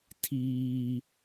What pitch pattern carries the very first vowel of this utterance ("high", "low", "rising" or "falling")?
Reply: high